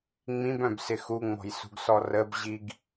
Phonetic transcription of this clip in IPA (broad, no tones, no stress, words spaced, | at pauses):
ŋ͡mĩbœ̃bsɪ xuŋ͡mɔ̤jsṳɡsɔ rəbʑiɡ